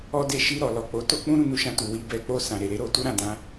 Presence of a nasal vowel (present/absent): present